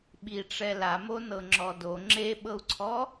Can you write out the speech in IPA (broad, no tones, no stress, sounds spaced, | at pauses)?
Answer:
ɓ i ʈ͡ʂ ɛ l a m o n ɤ ŋ͡ǁ ɔ d o ŋ͡ǁ e ɓ ɤ u̯ ǀʰ ɔ